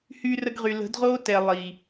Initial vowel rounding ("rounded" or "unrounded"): rounded